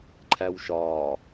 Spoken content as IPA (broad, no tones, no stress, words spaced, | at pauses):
ǃʰæwʃɒː